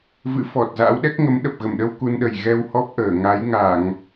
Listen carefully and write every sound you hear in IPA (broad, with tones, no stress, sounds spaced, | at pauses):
v ɨ̰˧˥ f ɔ˨˩ t̚ z a̰˧˥ w ɗ ɛ˦˥ k̚ ŋ ə˨˦ m ɗ ə˨˩ p̚ ɣ ə˧˩ m ɗ ə˧ w k u˧ n ɗ ə˨˩ j ɣ ɛ˧ w h ɔ˦˥ p̚ ʔ əː˧˩ ŋ a˨˦ j ŋ a˧˩˨ ŋ